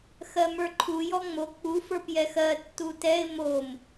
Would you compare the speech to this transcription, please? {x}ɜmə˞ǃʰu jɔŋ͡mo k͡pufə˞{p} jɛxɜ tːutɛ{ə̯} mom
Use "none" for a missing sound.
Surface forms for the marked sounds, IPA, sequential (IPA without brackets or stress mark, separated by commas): x, p, ɪ̯